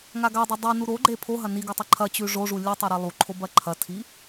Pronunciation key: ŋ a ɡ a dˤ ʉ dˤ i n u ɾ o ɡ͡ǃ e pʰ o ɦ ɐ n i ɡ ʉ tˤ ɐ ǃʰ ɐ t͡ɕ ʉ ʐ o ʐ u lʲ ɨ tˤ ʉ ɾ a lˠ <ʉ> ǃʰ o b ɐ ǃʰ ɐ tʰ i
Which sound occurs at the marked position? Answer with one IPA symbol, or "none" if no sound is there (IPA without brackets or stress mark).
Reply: u